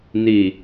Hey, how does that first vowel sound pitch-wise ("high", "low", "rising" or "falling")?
low